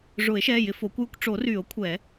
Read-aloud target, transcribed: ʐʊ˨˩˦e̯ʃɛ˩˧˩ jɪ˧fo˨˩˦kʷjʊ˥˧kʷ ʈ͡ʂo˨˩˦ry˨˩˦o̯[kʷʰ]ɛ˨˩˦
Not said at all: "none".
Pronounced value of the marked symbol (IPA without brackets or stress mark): kʷʰ